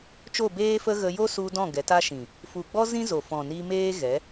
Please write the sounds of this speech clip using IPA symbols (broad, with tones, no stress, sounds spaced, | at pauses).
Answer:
t͡ʃ o˦˨ b eː˦ f ə˦ ɣ ə˧ j o˦ s u˧ d ɔ̃˦˨ ɡ ɛ˨˦ t a˦ ʃ ĩ˨ | f u˨ ɡ͡b ɔ˦ z ĩ˦ z o˨ f ɔ̃˨ n i˧ m eː˦ ɣ ɛ˨˦